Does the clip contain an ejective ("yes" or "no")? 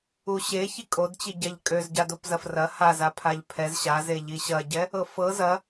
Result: yes